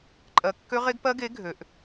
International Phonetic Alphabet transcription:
ǃʼ ɜ˨˩ kː ø˦˥ ʁ e˦˥ ɡ p ɜ˦˥ ɡ e˨˥ ɡʱ ø˩˧ ʔ

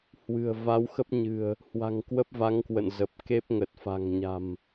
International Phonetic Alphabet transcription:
h w ɨ̤˨˩ ə̯ v a˨˦ w x ə˦˥ p̚ ɲ ɨ̤˨˩ ə̯ | h w a̤˨˩ ŋ k w ə˦˥ p̚ v a˨˦ ŋ k w ə̰˧˨ n z ə˨˩ p̚ k e˦˥ p̚ ŋ ə˨˩ t̚ f a̤˨˩ ŋ ɲ a̤˨˩ m

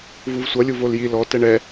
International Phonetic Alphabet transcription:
v u v sʷ ʌ lʲ u v o l j i l ɔ t ɛ ɳ ɛ

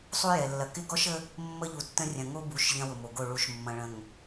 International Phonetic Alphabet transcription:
sˤ u˦ j ɛ˨ lː ɐ˨ k ɪ˦ ɡ ɔ˦ ʃ ə˦ | mː ə˦ ʎ u˨ tː ə̃˦ rʲ ɐ̃˨ ŋ o˦ b u˨˦ ʃ ʎ ɐ̃˦ w ʊ˨ m o˨ ɡ o˦˨ ɭ u˨ ʃ mː ɐ̃˨ ɭ ə̃˨ ŋ

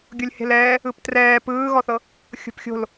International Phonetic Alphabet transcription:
ɡʲ o lʲ h e̤ l ɛː | ɯ p t r ɛː p ɯː ɣ ɔ θ ɤ | xʲ o̤ p xʲ o̤ l

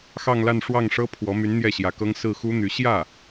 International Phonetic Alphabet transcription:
x ɑ˥˧ ŋ l a˥˧ n ʂ w ɑ˥˩ ŋ ʂ ɤ˥ pʰ w ɔ˧˥ m y˧˥ n n̪ j ɛ˥˩ ɕ j ä˧˥ k ɤ˥ ŋ s ɹ̩˥˩ x u˥ n̪ y˧˥ ɕ j ä˥˩

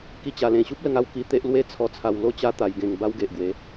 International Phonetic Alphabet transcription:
k i˦ t͡ɕ a˧ l ẽ˧ ɕ u˦ p̚ l ə˧ ŋ a˥˧ w k i˧ t̪ e˦ ʔ l w e˦ t͡sʰ ɔ˧ t͡sʰ a˧ w l o˦ t͡ɕ a˦ t̪ a˧ j ɡ ẽ˧ ŋ b a˦ w ɡ e˨ ʔ ɡ w e˨˦

